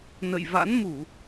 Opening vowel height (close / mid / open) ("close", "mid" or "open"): mid